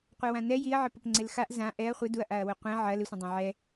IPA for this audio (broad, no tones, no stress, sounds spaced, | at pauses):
qʷ ɛ w ã n ɛ j i ɐ̯ ʕ ɪ p ʊ p ŋ͡ǀ ɪ l x a ʔ z ã ʔ ɛ ɐ̯ χʷ ɪ d u ɐ̯ ʔ a ɐ̯ w ʊ qʷ ɛ̃ ʕ ɐ l ɪ sʷ ɐ̃ dˤ ã ʕ ɛ